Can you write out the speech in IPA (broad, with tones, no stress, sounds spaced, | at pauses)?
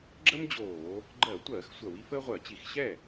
ɡ͡ǁ ə˥ m d͡ʑ oː˧˩˧ | ɡ͡ǃ ɜ˧˩˧ tʷ ɜː˧˩˧ x sʷ ɜ˧˩˧ w i˥ f əː˥ ʁʷ ɜ˧˩˧ t͡ɕ i˧˩˧ x ɕ ɛ˥˩